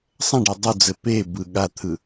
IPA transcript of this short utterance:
sˤ ɐ̃ ɖ e dˤ u d͡z ɘ p e b ɯ ɠ a t̪ʰ ɯ

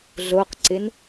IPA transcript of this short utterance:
ɮ o q ǀ ɪ n

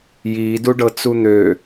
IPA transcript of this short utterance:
j iː d u ɖ ɤ t͡s u n̪ ø

